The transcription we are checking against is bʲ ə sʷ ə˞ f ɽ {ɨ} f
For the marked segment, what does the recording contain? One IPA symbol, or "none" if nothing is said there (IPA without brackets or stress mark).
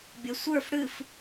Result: ɨ